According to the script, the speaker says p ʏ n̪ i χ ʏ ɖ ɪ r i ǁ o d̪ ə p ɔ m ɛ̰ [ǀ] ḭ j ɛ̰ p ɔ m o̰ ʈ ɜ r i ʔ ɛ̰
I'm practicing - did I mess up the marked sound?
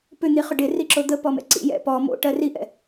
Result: no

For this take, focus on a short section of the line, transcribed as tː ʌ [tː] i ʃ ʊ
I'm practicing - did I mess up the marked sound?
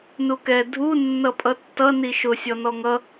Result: yes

